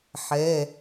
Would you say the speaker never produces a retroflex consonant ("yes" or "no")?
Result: yes